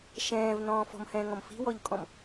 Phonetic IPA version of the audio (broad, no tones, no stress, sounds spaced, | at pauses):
ʃ ɛ̃ː v n ɔ̃ː f ɔ̤ m h ɛ̃ː ŋ ɔ̃ m f i̤ w ɔ ʎ kʼ ɔ̃ m